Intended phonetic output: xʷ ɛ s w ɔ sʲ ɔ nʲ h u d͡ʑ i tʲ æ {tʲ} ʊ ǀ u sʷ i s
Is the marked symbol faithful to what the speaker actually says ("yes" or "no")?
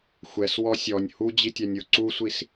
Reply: no